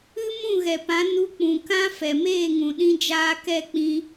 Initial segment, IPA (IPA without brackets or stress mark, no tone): ɨ